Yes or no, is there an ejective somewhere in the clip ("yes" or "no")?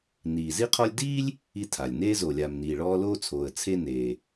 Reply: no